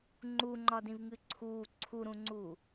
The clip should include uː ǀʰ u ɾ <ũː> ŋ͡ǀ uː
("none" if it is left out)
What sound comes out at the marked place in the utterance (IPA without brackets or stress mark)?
ũ